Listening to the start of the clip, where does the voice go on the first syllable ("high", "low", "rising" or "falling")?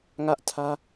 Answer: high